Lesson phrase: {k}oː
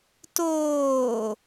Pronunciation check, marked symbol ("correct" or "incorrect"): incorrect